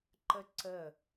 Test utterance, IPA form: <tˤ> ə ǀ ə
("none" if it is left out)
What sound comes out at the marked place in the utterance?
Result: ǃ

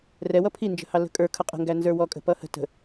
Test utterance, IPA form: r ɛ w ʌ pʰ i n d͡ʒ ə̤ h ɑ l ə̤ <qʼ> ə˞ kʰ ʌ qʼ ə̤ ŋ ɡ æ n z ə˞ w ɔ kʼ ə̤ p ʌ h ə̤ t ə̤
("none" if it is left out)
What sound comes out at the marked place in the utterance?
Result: kʼ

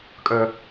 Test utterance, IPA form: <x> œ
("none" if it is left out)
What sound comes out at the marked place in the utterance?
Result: kʼ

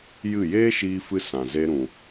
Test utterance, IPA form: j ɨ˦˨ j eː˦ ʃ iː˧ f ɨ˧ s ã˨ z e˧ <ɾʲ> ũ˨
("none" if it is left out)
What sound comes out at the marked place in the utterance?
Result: ɾ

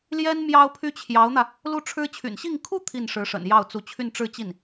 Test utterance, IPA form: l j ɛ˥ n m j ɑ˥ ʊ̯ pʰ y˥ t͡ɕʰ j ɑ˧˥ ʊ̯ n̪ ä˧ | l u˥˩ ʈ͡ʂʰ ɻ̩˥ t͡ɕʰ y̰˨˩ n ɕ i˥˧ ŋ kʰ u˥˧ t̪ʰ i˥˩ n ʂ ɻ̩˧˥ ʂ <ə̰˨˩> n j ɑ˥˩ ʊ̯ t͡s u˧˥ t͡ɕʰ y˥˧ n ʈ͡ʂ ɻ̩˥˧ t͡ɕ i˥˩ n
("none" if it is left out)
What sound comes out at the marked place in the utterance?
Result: ə̰˨˩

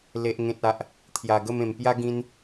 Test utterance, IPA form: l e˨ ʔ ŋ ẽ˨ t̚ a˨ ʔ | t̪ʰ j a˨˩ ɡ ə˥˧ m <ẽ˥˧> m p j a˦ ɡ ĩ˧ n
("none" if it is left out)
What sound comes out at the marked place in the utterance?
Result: ẽ˨˩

